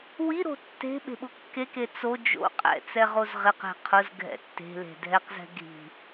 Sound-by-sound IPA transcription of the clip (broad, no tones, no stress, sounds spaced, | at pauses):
w i ɾ o̤ tː e̤ ɓ e̤ ɓ ʊ kː e k e t͡s o d͡ʒ o̰ qʼ ɛ̰ t͡s ɛ ʁ o z ʁ ɪ q e̤ qʰ ʊ z ɡʱ ɛ̰ tː e̤ l e̤ dʱ ɛ q z ɛ̤ ɡʱ i̤